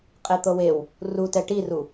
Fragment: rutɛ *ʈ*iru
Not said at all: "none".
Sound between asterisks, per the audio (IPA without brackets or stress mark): ʈ